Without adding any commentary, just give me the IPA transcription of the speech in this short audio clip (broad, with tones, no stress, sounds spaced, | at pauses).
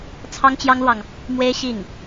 t͡sʰ ɑ˥ ŋ t͡ɕ j ɑ˥ ŋ l w ɑ˨ ŋ | m w e˥ ɪ̯ ɕ i˥˩ ŋ